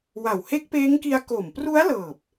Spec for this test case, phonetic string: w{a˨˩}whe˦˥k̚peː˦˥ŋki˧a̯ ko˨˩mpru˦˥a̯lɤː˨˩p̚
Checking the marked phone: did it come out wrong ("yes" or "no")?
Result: no